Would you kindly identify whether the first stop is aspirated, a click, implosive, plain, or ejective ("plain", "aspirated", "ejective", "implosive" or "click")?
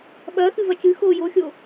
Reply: implosive